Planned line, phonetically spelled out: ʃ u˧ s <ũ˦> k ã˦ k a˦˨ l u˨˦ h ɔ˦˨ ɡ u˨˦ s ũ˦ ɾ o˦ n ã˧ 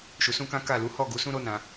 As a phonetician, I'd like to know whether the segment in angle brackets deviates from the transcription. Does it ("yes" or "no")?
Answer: no